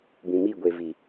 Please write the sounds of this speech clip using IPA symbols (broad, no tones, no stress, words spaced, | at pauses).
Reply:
bĩmi ɡʷevi